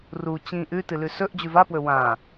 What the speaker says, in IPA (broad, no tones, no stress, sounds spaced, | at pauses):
r u t͡ɕ ĩ ʔ ʉ t ɨ l ʉ s ɵ ʔ d͡ʑ ʉ v a p w ɵ w ã